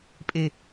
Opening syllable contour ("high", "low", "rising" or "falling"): low